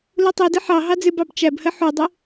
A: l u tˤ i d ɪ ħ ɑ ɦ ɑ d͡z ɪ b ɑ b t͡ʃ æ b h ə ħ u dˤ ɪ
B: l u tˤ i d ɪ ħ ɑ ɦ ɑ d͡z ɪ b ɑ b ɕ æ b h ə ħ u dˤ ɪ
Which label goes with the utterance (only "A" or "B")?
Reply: A